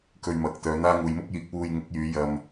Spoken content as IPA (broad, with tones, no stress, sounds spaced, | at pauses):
k ɵ˧ ɥ m ɐ˨˥ k̚ t̪ œː˨˧ n̪ aː˥ ŋ uː˨ j m ʊ˥ k̚ j iː˨˥ k̚ w uː˧ j ŋ ɪ˨˥ k̚ j yː˨˧ j ɐ˧ m